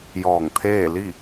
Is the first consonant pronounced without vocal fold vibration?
no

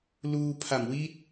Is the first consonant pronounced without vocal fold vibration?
no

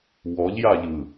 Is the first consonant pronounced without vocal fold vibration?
no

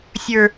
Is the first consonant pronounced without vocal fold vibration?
yes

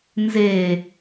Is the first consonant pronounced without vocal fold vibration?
no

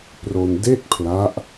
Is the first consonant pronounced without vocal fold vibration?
yes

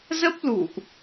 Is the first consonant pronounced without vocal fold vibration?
no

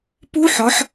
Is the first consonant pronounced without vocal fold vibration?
yes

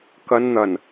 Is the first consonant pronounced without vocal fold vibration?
yes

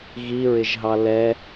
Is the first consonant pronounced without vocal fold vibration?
no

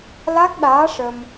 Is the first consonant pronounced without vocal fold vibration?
no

